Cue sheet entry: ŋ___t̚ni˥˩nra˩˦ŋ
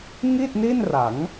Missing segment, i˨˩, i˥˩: i˥˩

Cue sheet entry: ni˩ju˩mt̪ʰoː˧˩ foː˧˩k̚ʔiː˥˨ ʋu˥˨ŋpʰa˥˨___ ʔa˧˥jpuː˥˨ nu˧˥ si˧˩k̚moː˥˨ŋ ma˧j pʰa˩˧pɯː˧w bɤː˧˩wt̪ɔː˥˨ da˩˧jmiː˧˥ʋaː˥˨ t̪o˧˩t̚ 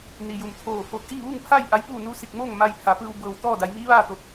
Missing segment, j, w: j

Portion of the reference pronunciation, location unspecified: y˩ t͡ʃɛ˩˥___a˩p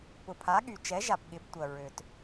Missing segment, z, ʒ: ʒ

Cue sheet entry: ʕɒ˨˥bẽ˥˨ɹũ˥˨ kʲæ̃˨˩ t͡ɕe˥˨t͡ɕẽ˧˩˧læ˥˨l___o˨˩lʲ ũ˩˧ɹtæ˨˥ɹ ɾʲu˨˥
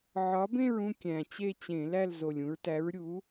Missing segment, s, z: z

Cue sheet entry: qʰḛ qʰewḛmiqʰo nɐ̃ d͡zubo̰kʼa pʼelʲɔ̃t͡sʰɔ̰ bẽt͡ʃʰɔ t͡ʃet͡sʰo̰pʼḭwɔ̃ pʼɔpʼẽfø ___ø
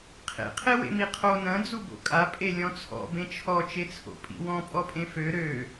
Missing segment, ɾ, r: ɾ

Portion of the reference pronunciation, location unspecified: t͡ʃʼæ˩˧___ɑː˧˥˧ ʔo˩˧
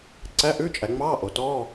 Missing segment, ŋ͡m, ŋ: ŋ͡m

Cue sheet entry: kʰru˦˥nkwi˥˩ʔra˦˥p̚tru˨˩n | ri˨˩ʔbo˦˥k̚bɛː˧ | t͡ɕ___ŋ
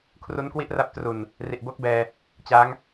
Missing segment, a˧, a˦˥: a˦˥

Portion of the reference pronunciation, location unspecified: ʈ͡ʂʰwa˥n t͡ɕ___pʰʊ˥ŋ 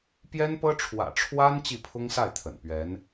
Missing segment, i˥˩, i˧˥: i˥˩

